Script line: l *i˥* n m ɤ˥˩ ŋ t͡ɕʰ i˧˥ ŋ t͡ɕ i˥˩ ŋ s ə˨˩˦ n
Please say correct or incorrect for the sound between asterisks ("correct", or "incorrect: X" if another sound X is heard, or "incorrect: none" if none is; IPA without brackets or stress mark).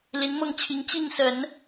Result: incorrect: i˧˥